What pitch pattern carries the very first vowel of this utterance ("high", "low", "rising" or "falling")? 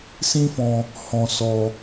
high